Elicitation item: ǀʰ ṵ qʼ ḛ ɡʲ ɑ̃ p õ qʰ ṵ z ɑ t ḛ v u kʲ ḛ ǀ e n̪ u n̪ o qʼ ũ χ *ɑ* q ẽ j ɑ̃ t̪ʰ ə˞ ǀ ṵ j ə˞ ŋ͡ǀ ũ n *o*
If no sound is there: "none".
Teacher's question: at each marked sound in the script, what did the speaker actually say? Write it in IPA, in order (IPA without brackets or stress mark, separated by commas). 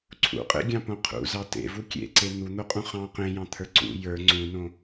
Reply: ɑ̃, õ